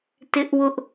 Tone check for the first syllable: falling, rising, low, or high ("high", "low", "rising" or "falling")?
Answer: high